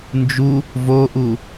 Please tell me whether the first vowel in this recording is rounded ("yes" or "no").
yes